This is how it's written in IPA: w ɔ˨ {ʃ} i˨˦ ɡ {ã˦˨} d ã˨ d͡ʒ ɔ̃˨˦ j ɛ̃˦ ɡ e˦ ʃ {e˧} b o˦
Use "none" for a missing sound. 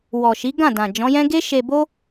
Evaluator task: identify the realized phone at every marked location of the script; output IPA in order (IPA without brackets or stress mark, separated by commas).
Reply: ʃ, ã˦˨, e˧